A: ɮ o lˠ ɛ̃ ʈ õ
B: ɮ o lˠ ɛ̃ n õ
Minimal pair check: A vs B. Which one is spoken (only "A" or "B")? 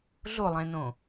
B